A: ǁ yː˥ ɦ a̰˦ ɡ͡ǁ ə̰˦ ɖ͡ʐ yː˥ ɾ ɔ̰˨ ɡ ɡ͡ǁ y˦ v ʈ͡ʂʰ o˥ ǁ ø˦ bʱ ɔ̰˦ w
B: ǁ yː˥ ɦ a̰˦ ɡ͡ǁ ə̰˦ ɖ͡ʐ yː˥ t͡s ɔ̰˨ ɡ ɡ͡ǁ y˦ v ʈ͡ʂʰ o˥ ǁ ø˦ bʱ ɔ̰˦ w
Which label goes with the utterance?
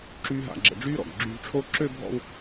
A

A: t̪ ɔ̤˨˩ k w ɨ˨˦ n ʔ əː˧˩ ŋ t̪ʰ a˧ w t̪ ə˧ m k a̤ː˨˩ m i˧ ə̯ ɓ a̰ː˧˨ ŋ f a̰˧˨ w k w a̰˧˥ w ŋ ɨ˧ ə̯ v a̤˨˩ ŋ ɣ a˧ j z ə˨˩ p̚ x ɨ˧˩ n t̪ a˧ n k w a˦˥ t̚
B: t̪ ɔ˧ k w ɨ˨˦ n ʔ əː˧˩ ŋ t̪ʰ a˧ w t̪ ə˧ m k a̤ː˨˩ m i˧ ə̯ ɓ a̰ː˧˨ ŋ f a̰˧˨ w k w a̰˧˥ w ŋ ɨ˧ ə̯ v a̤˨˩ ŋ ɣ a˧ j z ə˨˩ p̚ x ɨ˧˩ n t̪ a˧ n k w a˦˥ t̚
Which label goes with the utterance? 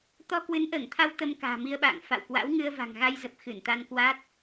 B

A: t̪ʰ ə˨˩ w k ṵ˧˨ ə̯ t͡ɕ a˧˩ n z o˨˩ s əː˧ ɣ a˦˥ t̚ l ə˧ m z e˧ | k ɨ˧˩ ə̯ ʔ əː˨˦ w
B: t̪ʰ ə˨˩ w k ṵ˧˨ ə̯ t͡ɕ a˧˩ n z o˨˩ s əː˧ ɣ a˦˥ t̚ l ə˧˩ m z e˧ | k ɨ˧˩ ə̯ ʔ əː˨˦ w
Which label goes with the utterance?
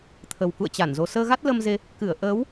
A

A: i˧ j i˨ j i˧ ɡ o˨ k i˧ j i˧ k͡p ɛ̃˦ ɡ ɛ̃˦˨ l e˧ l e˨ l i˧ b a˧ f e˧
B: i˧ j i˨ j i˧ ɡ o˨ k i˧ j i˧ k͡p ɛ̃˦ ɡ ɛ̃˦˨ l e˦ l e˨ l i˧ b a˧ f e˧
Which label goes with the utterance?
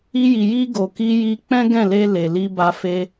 A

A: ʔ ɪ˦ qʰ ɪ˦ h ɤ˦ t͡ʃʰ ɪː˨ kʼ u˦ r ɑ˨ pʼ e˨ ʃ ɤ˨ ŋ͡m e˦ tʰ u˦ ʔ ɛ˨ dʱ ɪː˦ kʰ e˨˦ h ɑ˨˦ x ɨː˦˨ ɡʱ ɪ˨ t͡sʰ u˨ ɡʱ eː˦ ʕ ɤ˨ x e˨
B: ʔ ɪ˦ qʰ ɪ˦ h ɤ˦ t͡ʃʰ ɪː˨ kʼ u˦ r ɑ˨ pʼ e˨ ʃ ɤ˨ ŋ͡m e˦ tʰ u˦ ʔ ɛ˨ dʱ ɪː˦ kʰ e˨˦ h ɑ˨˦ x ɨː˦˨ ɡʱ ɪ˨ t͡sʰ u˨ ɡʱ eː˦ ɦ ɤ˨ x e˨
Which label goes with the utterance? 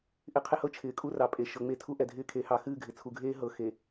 B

